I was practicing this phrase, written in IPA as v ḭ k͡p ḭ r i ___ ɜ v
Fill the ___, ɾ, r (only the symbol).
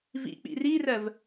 r